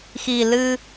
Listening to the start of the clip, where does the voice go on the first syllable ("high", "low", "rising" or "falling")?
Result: low